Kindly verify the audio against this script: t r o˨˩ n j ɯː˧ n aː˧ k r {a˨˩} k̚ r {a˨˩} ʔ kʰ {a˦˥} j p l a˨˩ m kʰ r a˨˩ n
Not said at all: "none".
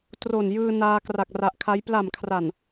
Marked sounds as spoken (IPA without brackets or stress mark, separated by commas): a˨˩, a˨˩, a˦˥